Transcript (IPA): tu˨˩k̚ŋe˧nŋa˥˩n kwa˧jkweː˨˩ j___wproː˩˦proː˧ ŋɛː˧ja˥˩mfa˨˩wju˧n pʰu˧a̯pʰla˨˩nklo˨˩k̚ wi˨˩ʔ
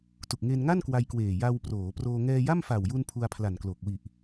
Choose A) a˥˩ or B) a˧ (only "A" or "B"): B